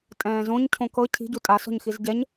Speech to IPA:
tʼ ɛ̃ː z õ ɲ cʰ õ k ɤ cʰ i̤ ɟ u tʼ a s ɔ̤ ɲ x i z ɟ ɛ ɲ

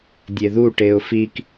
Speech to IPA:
dʲ e ð u ʈ e ʊ̯ f i k

